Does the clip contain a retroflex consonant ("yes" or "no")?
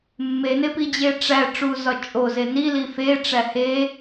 yes